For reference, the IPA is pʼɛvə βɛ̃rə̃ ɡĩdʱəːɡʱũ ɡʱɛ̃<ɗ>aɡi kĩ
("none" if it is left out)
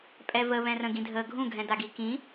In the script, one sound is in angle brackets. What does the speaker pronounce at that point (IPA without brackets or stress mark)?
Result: d